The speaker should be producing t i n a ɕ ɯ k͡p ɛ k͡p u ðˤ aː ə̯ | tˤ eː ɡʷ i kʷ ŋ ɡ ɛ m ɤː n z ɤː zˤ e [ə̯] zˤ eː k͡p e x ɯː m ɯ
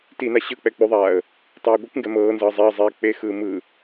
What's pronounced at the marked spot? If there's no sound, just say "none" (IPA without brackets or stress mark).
ə̯